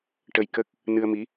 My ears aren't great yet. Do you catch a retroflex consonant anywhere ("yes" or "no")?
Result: yes